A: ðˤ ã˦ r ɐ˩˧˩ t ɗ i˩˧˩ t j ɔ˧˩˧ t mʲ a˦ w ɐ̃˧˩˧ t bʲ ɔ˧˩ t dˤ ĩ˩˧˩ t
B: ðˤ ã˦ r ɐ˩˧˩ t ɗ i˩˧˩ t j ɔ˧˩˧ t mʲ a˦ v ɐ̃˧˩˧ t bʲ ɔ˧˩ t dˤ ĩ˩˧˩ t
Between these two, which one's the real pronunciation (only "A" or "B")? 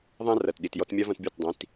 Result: B